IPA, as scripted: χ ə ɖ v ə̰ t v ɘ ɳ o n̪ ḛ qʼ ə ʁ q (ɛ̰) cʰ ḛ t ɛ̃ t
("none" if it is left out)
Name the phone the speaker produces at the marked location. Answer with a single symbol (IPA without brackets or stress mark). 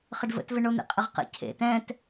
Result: ə̰